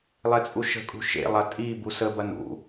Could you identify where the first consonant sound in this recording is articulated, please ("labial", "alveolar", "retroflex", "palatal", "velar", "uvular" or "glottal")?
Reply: alveolar